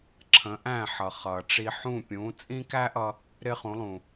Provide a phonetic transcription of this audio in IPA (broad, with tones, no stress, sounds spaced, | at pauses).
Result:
ǁʰ ə̃˩˥ ʔ æ̃˥˩ ħ ʌ˩ χ ʌː˩ ʈ͡ʂ i˧ ħ ũ˥˩ pʲ ũ˩˥ t͡sʼ ĩ˥ k æ˥ ʔ ʌ˧ | ɾ ɪ˥ χ ũ˩˥ lˠ ũ˩